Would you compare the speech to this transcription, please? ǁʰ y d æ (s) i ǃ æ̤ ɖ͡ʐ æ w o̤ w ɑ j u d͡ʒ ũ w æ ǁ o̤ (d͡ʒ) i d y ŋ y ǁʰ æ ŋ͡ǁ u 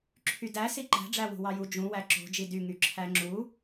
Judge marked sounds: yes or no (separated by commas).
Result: yes, yes